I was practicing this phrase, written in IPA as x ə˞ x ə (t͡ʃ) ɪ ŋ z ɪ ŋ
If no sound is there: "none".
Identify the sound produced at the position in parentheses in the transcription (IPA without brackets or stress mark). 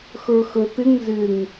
t̪